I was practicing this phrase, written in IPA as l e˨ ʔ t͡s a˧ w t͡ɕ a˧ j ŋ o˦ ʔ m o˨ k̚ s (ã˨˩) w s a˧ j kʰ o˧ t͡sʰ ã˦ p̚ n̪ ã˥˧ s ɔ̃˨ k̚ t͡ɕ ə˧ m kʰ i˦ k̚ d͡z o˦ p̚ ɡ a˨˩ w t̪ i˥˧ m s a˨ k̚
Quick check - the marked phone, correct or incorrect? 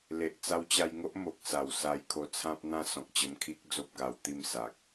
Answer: incorrect